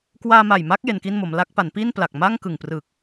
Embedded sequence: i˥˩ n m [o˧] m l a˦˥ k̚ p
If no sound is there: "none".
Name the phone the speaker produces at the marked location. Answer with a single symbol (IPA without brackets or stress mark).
o˩˦